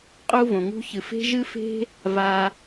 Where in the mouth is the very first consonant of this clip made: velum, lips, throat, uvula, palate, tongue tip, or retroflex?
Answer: uvula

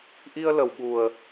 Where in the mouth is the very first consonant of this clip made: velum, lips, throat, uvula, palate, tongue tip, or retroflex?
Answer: throat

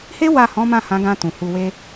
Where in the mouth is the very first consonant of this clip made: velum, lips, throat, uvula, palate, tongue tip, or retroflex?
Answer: throat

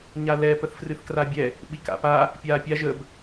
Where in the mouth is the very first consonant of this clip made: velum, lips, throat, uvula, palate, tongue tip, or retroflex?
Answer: palate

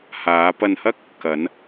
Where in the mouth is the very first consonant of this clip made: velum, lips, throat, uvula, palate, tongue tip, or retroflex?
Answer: throat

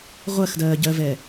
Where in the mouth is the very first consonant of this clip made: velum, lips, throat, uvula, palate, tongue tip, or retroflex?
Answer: uvula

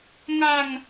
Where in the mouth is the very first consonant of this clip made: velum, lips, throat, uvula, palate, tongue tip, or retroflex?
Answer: velum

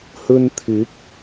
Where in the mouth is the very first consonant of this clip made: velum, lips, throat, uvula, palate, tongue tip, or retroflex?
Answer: throat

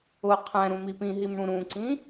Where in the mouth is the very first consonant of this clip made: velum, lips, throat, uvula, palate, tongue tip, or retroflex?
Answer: uvula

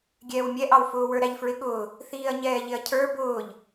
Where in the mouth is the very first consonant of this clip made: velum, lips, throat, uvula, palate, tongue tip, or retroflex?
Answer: velum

